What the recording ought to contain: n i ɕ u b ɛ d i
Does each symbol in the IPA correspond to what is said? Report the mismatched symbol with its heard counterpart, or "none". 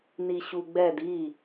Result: b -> ɡ͡b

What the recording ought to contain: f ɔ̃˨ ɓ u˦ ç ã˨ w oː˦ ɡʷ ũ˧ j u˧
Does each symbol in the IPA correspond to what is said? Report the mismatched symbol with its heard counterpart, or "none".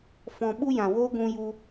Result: ç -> j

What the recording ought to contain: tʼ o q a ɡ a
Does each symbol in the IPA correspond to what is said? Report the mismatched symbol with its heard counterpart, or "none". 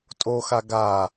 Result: q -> x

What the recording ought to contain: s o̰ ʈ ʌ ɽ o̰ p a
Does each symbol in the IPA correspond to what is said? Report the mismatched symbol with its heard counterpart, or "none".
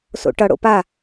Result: none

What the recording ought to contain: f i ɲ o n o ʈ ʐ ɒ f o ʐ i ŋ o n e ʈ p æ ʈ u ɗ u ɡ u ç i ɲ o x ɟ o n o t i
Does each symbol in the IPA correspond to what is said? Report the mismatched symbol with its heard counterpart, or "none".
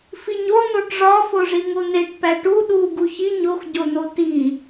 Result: none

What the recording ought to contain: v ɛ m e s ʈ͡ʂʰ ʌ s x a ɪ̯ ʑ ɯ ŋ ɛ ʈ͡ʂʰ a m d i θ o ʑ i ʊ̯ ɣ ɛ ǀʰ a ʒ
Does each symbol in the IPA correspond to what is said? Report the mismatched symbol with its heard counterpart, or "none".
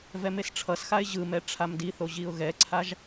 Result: ŋ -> m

